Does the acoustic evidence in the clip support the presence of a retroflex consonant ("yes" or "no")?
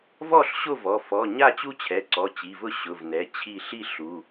no